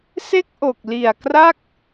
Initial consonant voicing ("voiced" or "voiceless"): voiceless